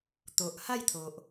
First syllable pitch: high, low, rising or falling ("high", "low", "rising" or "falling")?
low